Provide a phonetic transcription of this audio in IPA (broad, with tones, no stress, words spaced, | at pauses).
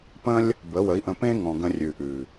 pə̃˦lʲ | bə˨˦wə˨˦i̯ʔə̃˧ pẽ˦ŋɔ̃˨ ɡə̃˧rʲʉ˨ʔʉ˨